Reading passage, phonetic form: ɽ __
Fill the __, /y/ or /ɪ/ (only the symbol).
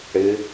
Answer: ɪ